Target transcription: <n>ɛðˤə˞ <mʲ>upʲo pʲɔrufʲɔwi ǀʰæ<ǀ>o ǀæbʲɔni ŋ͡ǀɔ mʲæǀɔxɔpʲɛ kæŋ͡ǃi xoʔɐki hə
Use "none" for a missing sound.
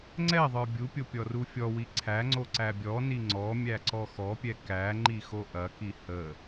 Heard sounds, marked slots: ŋ͡ǀ, bʲ, ŋ͡ǀ

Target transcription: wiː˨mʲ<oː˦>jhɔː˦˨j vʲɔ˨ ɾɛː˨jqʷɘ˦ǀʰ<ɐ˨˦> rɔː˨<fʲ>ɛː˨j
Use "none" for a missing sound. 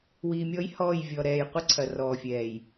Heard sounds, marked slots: ɔː˦, ɐ˨, fʲ

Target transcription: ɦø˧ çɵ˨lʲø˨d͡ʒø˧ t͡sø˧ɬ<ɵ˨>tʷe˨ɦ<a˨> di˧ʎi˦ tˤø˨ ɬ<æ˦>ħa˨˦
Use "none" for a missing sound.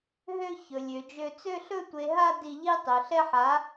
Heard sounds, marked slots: ɵ˧, a˧, ɛ˦

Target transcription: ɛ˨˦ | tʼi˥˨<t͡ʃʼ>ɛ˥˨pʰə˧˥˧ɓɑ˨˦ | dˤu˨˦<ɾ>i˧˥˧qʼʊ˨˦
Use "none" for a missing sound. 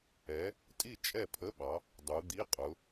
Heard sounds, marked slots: t͡ʃʼ, d̪

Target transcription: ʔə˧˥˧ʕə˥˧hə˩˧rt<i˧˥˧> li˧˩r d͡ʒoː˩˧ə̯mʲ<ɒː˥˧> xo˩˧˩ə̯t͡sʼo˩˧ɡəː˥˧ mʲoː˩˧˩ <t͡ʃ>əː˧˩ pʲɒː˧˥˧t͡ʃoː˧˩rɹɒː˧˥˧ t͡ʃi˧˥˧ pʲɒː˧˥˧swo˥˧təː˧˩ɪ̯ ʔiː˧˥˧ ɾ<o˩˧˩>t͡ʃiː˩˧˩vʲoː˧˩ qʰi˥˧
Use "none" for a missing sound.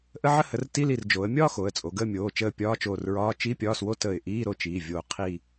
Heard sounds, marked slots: i˧˥˧, ɒː˥˧, t͡ʃ, o˥˧

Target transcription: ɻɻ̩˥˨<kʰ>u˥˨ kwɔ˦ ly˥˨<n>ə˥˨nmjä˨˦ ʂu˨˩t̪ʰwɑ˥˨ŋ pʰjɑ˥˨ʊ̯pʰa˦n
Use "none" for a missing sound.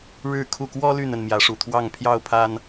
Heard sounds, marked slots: kʰ, n

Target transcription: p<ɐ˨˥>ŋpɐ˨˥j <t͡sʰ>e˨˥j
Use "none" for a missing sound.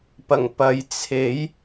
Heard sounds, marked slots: ɐ˨˩, t͡sʰ

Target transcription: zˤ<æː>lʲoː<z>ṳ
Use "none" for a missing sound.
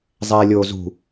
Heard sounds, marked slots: ɛː, z

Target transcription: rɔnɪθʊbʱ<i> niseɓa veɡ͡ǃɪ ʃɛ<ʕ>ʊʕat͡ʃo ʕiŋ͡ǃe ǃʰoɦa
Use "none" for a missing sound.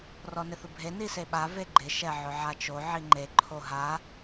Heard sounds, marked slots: e, ʕ

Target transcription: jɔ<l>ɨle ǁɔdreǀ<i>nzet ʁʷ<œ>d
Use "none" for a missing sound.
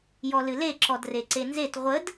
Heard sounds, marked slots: l, e, ə

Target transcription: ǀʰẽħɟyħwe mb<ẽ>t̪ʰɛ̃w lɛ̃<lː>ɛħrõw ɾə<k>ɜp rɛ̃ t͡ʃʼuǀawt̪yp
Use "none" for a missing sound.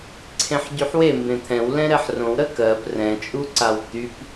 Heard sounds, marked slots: ẽ, ɾ, k

